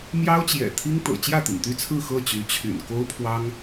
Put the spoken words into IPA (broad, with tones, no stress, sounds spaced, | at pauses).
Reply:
m j ɑ˥ ʊ̯ t͡ɕ j ɛ̰˨˩ t̪ʰ i˥ ŋ t̪ ɤ̰˨˩ t͡ɕ j ä˥˩ t̪ ḭ˨˩ ŋ t̪ y˥˧ t͡sʰ ɹ̩˥˧ x ɤ˥˩ t͡ɕ y˧˥ t͡ɕʰ y̰˨˩ n k o˥ ʊ̯ pʰ w ɑ˥ ŋ